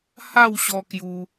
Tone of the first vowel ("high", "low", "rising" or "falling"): falling